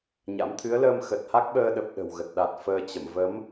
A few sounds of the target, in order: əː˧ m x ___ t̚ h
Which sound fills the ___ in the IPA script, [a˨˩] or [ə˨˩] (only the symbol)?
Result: ə˨˩